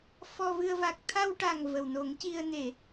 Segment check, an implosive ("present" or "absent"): absent